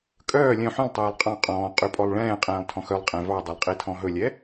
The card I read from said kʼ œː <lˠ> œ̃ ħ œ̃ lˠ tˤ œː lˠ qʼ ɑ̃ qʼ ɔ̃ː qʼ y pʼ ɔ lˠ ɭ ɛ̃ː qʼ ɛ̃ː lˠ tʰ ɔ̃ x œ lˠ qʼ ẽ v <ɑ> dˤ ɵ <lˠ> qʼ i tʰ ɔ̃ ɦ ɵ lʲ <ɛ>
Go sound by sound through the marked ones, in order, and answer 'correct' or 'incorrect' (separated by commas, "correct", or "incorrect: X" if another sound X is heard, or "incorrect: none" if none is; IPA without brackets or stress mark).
incorrect: lʲ, correct, correct, correct